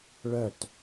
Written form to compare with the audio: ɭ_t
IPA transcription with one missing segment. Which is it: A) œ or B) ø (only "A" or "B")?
A